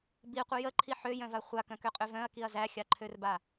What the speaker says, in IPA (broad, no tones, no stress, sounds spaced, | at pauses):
b i qʷ ə j ə ǃʰ i ħ ø j œ̃ v a χʷ a k œ̃ k ø qʼ ø v œ̃ ɐ̯ k i ɐ̯ z æ xʲ a ǃʰ ø r b a